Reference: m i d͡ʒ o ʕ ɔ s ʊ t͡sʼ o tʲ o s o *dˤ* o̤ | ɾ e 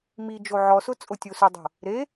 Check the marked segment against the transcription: correct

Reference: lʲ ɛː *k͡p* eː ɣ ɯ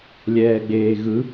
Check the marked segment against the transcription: incorrect: ɡ͡b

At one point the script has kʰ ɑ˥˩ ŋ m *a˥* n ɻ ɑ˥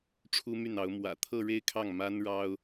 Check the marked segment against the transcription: correct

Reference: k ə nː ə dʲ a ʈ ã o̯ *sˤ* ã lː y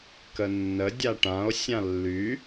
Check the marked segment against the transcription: incorrect: sʲ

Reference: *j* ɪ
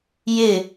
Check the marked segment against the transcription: correct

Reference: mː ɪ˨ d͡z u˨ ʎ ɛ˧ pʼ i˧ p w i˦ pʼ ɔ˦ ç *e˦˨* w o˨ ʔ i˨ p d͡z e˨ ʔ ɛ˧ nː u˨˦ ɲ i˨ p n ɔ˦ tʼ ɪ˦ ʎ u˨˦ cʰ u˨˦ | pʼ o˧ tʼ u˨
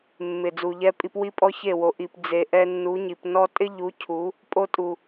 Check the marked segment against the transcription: correct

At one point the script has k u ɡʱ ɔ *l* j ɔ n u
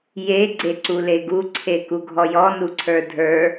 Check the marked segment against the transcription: incorrect: none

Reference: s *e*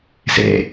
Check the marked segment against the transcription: incorrect: ḛ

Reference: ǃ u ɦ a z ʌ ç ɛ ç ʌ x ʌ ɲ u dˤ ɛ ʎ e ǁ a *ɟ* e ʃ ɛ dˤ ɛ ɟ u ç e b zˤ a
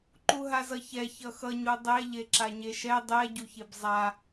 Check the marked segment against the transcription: incorrect: ɲ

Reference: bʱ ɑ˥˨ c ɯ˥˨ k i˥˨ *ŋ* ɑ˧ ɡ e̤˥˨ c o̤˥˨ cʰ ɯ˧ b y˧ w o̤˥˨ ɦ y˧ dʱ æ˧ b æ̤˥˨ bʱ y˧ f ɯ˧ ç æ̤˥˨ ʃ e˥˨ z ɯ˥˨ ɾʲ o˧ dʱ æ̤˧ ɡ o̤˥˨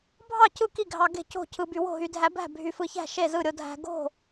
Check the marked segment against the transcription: incorrect: ɡʱ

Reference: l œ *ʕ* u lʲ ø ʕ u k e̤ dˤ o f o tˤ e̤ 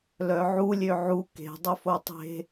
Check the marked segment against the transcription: correct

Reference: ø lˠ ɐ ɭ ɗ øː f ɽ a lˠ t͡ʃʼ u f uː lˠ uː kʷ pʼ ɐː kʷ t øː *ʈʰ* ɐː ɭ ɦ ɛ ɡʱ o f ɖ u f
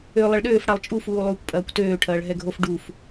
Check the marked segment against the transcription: correct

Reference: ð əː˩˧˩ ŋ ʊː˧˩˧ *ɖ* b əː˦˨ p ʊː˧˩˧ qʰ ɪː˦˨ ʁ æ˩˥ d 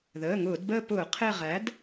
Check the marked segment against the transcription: incorrect: d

